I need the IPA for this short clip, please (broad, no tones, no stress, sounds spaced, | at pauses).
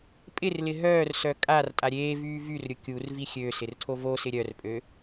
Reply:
pʼ ɪ r l ɪ ɦ œː r s œ kʼ a r tʼ a ɾʲ eː v yː v y r ɾʲ ʊ kʲ u r v i xʲ ø s ɪ r tʰ o v o s ɪ ɾʲ œ r pʼ ø